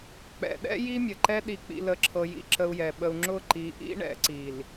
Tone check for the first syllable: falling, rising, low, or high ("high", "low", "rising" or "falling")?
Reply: low